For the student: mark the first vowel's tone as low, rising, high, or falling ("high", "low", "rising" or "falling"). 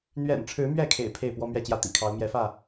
low